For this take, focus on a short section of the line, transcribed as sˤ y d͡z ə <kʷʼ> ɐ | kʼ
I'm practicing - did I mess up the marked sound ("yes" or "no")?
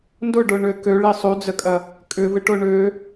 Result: yes